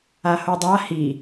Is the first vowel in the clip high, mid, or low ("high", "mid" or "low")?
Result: low